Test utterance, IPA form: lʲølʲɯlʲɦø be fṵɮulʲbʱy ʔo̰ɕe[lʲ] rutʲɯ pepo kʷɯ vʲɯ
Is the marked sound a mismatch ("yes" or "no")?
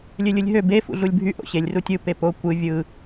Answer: no